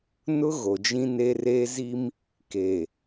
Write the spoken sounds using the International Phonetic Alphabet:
n ʊ˦ ɣ o˨ d͡ʒ ĩ˦ n e˦ r e˦ z i˦ m | k eː˨

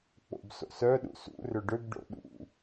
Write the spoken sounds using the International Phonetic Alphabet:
k͡p o̰ b s o̰ s œ ɗ ṵ s ṵ r ʏ ɖ ʏ b ɖ o̰ ɗ ṵ

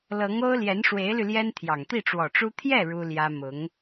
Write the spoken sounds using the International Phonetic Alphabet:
l ɤ˧˥ ŋ o˥ ʊ̯ l j ɛ˧˥ n ʂ w e˧˥ ɪ̯ l y˧ l j ɛ˥ n t̪ʰ j ɑ˨˩ ŋ t̪ i˥˩ ʈ͡ʂ w ɔ˨˩ ʈ͡ʂ u˥ t̪ʰ j ɛ˥˩ ɻ u˥ l j ä˥ m ʊ˧˥ ŋ

